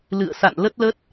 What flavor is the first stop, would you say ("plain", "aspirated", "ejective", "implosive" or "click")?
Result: plain